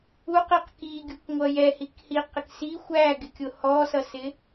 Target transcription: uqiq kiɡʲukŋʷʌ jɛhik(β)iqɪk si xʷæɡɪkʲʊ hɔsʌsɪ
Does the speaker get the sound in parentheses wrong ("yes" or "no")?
yes